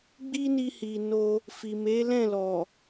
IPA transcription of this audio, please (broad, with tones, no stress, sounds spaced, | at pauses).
ɡ͡b i˦ n i˧ h i˨ n o˧ | f i˨ m e˨˦ l ɛ̃˦˨ l ɔ˨